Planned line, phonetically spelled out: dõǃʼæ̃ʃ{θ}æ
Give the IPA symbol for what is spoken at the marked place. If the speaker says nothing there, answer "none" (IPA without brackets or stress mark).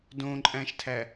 tʰ